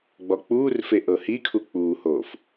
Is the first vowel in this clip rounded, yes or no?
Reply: yes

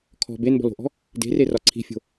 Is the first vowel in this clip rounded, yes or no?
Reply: yes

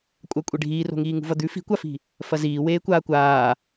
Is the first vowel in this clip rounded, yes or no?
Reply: no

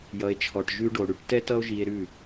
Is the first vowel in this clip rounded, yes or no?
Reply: no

